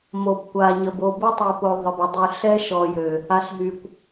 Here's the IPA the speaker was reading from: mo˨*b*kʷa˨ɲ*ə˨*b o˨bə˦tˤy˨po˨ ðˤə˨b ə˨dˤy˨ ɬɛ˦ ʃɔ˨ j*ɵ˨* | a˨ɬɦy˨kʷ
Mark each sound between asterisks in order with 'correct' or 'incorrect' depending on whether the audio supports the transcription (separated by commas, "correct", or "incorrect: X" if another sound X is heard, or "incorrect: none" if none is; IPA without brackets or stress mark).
correct, correct, incorrect: ø˨